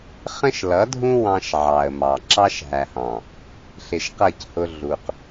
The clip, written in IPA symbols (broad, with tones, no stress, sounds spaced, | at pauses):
χ ə̃˦ ʃ l ʌ˨˦ dʱ ũ˦ w ɑ̃˦ ʃ ʕ ɑ˨ ə̯ m ɑ˨ ǁ ɑ˦ ʃ ɦ æ˨ h ɑ̃˨ | ɬ ɪ˨ ʃ q ʌ˦˨ c h ʊ˦ ɮ u˨ q